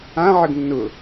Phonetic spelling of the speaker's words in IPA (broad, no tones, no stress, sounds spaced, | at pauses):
ã ʕ ə ɡ nː ʊ